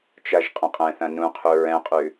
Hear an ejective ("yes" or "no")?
yes